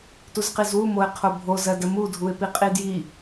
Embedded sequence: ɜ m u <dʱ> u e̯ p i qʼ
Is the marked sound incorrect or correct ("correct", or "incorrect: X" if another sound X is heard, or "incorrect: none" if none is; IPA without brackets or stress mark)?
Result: correct